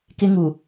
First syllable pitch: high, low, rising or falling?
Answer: high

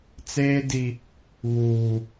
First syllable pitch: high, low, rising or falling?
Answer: high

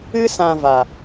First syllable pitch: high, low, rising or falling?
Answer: high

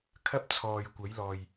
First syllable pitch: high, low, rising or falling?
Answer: high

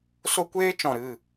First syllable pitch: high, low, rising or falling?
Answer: high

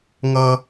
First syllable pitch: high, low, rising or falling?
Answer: high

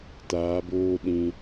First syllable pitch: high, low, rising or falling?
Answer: rising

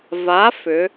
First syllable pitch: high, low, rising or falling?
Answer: rising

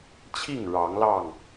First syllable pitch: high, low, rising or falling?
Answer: falling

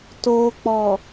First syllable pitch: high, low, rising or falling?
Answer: low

